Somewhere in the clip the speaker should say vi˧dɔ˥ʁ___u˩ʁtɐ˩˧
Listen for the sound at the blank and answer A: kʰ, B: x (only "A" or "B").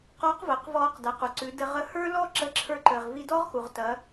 B